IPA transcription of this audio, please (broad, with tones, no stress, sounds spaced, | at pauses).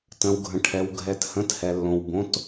t ə̃˩ w ɡʱ ə̃˩ ʈʰ ɛ˩ w ɡʱ ɛ˩ t h ə̃˩˧˩ t h ɛ˩ lː õ˩ w b õ˩˧˩ t